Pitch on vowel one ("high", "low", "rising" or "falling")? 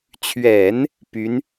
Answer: low